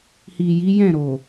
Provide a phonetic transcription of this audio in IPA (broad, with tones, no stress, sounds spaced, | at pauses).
h i˨ j i˨˦ j ɛ̃˦˨ ɾ o˨